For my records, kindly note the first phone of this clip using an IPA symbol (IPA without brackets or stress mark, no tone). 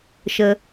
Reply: ʃ